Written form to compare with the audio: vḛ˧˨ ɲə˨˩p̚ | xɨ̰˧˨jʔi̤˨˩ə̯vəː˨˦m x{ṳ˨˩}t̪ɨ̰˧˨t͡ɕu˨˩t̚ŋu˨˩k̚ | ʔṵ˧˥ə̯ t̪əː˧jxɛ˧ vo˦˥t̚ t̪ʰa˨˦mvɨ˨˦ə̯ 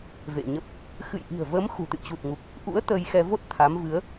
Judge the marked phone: correct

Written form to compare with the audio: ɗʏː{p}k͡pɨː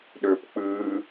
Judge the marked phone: correct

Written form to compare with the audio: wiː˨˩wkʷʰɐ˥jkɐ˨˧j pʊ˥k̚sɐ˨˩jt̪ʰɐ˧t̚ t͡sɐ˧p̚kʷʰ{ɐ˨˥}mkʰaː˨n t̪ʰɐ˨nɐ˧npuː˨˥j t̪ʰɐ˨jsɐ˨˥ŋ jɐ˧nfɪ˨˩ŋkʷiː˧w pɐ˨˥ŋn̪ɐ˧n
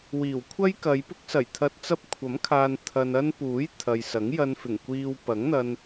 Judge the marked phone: correct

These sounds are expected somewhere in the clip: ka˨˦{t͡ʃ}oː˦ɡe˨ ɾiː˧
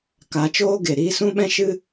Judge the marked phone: correct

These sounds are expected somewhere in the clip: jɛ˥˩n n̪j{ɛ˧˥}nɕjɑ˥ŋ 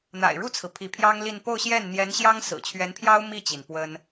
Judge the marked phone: correct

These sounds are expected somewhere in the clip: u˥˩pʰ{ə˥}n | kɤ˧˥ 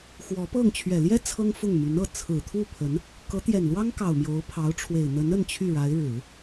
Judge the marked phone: incorrect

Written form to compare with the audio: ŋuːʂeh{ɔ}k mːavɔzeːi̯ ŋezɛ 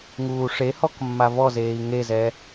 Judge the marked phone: correct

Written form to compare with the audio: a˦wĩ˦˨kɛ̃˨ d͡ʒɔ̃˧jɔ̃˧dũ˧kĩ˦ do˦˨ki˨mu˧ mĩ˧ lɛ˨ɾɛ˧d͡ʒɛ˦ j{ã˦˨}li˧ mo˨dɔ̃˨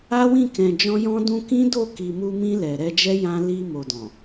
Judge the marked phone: incorrect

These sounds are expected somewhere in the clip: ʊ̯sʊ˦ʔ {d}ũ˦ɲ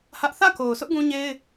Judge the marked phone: incorrect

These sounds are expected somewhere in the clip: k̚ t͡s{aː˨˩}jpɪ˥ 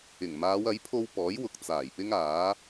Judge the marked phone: correct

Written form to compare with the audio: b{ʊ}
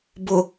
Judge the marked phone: correct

